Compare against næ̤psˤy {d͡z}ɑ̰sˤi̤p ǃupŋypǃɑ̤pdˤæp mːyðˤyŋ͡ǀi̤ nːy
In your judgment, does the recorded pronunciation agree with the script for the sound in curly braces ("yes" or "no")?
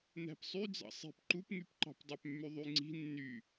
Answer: yes